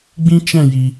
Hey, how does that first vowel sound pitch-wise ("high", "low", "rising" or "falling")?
high